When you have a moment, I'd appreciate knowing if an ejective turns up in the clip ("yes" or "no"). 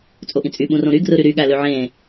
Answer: yes